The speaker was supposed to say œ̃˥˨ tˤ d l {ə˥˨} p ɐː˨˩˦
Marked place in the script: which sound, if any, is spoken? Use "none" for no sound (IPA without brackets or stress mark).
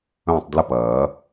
ə˥˨